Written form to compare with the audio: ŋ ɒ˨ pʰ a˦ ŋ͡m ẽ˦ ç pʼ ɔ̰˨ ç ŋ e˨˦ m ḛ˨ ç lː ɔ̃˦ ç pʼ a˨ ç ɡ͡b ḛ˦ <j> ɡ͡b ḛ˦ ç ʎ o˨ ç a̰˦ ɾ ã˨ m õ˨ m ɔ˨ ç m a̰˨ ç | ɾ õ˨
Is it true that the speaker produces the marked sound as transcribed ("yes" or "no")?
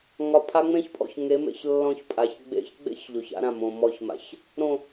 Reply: no